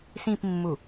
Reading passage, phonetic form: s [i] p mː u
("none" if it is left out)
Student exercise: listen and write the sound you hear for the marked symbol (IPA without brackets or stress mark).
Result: ĩ